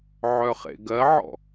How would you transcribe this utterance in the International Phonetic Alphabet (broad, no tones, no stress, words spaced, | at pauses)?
ʕœχḛɡɜʕɔ̰